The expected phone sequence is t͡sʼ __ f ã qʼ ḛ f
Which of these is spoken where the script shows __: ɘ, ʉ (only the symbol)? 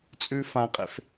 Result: ʉ